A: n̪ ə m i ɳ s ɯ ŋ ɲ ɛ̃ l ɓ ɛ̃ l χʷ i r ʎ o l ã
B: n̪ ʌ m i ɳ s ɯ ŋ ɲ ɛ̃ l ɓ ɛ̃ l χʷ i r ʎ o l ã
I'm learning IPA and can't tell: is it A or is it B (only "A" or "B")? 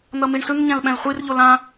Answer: B